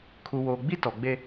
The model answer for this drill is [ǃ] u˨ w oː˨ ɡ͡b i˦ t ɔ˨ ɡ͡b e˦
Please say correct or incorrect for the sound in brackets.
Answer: incorrect: kʰ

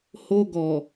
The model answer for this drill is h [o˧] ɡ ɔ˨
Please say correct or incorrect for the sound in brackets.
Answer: correct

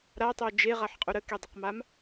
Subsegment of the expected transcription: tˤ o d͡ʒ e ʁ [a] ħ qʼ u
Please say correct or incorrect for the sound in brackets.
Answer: correct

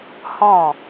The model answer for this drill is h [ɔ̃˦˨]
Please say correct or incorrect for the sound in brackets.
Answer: correct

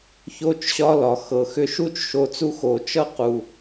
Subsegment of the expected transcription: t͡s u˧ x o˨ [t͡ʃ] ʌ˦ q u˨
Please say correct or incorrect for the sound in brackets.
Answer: correct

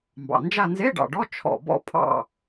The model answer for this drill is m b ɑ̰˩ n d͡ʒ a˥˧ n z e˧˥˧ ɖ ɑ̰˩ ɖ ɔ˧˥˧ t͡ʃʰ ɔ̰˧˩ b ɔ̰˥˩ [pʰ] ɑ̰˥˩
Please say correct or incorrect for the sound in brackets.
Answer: correct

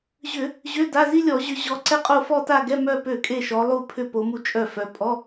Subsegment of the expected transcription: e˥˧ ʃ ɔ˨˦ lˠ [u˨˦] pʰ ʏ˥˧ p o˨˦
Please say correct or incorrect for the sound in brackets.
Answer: incorrect: u˥˧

